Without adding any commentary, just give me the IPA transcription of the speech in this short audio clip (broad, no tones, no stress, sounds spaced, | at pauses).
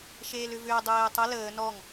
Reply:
ʃ eː l ʏ v ʏː dˤ eː tˤ ə l əː n ɔ ŋ